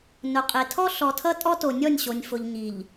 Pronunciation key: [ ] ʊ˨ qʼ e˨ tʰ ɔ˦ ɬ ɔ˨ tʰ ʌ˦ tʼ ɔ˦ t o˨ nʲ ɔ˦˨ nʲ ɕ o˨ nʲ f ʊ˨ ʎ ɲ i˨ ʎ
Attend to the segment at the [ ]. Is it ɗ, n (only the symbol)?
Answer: n